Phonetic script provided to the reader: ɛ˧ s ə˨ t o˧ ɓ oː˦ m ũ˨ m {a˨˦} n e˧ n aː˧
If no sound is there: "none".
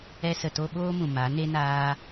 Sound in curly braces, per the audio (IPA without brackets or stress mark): a˨˦